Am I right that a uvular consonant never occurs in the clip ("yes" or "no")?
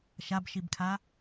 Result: yes